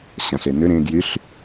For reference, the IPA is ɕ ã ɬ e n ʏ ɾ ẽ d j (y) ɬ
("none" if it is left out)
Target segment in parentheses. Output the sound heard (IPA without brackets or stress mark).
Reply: y